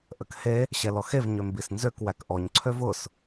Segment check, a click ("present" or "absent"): present